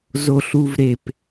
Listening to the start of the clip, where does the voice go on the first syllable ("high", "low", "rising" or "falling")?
high